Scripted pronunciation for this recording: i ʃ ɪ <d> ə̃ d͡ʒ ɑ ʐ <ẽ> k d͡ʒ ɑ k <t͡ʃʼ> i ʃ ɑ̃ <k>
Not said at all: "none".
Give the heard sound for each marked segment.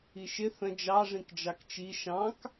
θ, ĩ, t͡ʃ, k

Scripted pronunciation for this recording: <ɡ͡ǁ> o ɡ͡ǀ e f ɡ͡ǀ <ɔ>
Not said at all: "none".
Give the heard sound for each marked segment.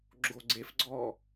ɡ͡ǁ, ɔ

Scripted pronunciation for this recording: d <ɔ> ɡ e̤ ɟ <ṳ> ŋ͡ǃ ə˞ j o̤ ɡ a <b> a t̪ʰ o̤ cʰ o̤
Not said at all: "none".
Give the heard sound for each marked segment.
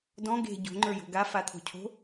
ɔ̃, o̤, f

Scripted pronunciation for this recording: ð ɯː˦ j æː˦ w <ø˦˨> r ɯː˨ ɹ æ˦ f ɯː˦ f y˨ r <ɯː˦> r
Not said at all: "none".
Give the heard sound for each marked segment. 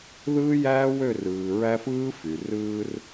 ø˦˨, ɯː˦

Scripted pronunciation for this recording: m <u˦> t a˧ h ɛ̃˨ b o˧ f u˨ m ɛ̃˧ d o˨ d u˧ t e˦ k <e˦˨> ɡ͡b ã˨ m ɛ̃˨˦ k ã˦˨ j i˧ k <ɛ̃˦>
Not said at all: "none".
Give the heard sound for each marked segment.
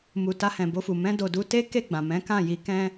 u˨, e˦˨, ɛ̃˦

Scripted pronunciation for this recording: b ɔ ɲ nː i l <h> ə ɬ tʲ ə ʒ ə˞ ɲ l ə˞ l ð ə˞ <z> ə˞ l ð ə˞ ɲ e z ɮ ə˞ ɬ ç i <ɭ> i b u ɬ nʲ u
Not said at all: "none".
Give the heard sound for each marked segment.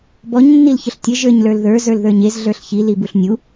ç, z, l

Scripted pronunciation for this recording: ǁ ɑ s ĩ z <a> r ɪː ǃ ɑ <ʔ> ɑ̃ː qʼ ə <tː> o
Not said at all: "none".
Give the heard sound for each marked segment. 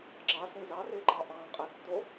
ɑ, ʔ, tː

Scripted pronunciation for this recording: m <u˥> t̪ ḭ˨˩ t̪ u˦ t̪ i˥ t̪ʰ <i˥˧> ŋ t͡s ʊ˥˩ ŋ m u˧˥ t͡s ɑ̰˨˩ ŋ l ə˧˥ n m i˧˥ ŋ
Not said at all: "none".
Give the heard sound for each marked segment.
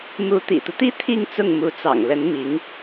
u˧˥, i˥˧

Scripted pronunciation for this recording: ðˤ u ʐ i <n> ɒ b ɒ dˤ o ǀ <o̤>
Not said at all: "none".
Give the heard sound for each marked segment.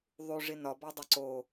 n, o

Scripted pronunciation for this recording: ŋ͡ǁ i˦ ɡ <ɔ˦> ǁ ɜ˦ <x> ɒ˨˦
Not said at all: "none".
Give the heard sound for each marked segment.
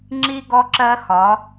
ɔ˦, x

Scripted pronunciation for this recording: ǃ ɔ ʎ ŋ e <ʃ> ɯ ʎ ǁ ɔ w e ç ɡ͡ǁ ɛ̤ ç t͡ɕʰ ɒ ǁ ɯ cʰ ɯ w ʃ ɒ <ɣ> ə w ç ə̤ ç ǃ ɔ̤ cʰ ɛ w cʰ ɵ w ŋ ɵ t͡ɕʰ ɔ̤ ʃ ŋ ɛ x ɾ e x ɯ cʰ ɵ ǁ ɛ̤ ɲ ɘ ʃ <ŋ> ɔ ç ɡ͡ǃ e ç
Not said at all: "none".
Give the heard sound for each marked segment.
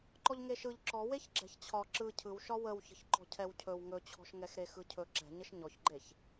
ʃ, w, ɲ

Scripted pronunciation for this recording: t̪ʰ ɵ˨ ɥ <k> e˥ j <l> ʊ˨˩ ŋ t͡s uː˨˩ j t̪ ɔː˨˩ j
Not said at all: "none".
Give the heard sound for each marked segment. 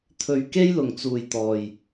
k, l

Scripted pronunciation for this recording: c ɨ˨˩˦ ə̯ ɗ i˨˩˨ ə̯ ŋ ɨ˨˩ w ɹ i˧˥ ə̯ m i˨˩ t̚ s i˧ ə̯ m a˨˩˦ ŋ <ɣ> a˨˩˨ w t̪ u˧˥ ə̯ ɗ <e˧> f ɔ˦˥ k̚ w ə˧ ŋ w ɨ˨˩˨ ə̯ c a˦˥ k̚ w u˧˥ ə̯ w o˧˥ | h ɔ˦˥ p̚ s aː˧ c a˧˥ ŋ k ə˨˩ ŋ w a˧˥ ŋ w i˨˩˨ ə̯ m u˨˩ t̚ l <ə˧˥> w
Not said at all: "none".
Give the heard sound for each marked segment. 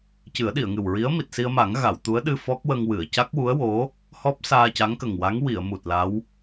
ɣ, ɨ˧, a˧˥

